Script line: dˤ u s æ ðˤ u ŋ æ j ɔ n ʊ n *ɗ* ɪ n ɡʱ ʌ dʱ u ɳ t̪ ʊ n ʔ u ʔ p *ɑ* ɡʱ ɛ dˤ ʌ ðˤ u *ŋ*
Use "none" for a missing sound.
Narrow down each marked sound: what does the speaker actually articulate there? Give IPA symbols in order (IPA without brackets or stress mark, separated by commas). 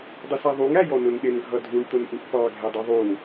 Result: ɗ, ɑ, ŋ